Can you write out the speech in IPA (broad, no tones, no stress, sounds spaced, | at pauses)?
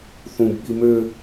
θ ũ b ɓ i m ø